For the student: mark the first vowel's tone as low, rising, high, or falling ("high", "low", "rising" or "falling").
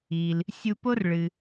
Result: low